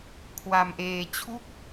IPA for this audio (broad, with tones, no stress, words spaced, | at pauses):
kʰwa˧mʔeː˧ t͡ɕʰu˥˩k̚